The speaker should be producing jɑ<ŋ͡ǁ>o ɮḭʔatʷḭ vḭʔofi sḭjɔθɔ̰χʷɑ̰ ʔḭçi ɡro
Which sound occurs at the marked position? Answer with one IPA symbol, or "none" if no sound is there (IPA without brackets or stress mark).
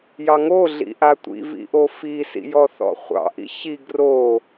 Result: ŋ